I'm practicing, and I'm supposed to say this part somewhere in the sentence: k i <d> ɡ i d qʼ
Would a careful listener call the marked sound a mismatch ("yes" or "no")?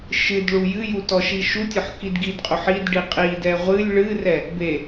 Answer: no